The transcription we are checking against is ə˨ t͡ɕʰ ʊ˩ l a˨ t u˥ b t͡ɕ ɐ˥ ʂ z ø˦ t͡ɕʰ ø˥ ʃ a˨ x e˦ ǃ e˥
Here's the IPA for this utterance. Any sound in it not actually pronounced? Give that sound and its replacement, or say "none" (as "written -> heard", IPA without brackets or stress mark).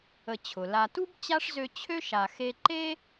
ɐ˥ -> a˥